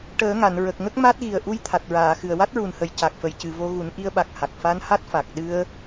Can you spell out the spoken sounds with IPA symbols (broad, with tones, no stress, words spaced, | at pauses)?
ʈəː˨˩˦ŋa˨˩˨n ɹə˨˩k̚ŋə˦˥k̚ma˦˥t̚ ɣi˨˩ə̯ʔu˧j t̪ʰa˨˩t̚ɹaː˨˩˨xɨ˨˩ə̯ wa˦˥t̚ɹu˨˩nhə˨˩j ca˨˩k̚fə˨˩jcɨ˨˩vo˧ ɣu˨˩˦nʔi˧ə̯ɓa˨˩k̚ha˨˩k̚ fa˧n ha˦˥t̚ fa˨˩k̚ ɗɨ˧ə̯